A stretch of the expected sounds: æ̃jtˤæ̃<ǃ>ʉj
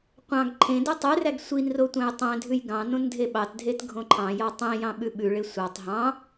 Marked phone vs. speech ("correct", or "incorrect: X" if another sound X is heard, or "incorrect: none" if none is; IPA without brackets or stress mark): incorrect: dʱ